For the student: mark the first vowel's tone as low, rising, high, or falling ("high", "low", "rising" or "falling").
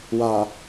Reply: low